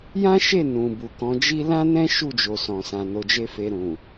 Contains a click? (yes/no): no